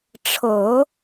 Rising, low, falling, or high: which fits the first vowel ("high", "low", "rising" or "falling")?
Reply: low